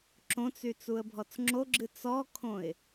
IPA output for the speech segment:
ǁ õ t͡s y t͡s u ə̯ bʱ ɔ t͡s ŋ͡ǁ o ɡ͡ǁ ɨ t͡s ɔ kʰ õ ɪ̯

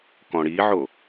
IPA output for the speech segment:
k ɔ̃ ɽ i ʕ o

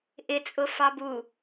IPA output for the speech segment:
ʔ ɪ t͡sʼ ʊ f ɑ b u

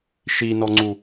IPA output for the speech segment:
ʃ i n ɔ ŋ͡ǀ u

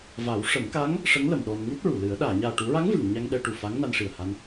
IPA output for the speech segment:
v a˨˩˦ w ʂ ə˨˩˦ m k a˧˥ ŋ | ʂ ə˧˥ ŋ l ə˨˩˨ m ɗ ɔ˧ n ŋ u˦˥ t̚ ɹ u˨˩˨ l ɨ˨˩˦ ə̯ ɗ aː˨˩˨ ɲ aː˨˩ ʈ u˨˩˦ ɹ a˧˥ ŋ v ɨ˨˩˨ ŋ ɲ a˧ ŋ ɗ ɛ˧ ʈ u˨˩ f a˧˥ ŋ n a˧ n ʂ i˨˩ ə̯ h a˧ n

